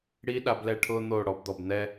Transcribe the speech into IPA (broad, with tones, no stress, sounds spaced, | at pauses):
ɽ i˦ ɗ a˧ b l ɛː˧ ʈʰ ʊː˦ n̪ oː˦˨ ɽ ɔ˧ b d̪ ɔ˨ b n̪ ɛ˦